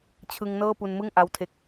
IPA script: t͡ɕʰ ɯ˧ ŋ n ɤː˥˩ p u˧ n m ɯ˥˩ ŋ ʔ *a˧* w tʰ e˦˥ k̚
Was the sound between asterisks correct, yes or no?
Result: no